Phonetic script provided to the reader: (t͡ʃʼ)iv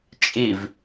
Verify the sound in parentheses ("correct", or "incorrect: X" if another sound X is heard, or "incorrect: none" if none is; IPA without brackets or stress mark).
correct